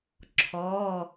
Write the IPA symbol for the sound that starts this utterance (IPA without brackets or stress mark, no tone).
ǁʰ